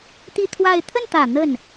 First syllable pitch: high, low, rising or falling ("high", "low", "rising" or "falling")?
falling